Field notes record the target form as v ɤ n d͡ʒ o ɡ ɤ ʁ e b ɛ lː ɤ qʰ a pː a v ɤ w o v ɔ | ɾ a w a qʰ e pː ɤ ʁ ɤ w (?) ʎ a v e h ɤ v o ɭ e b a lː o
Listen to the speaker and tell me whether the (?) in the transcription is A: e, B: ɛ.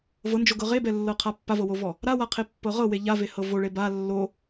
A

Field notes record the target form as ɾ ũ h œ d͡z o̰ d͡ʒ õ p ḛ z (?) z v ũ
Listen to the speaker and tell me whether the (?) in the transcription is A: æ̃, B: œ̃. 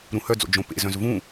B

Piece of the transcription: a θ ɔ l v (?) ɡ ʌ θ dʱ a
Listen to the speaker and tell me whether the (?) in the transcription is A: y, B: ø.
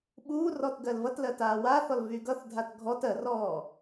A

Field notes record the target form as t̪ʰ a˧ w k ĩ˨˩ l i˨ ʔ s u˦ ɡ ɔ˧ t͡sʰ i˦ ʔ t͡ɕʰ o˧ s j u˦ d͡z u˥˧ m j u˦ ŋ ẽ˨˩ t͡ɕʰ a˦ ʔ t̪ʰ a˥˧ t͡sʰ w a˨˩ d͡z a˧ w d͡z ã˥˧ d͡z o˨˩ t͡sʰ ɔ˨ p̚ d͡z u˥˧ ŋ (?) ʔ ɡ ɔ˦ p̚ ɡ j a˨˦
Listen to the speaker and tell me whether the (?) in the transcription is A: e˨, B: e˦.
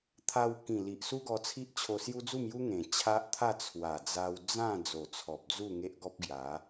B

